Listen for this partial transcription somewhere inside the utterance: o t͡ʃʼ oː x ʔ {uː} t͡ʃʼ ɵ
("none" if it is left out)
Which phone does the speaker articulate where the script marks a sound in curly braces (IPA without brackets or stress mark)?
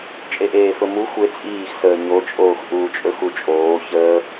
uː